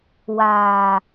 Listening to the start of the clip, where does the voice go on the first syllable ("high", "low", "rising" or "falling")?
low